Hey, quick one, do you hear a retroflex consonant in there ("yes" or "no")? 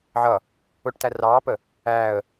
yes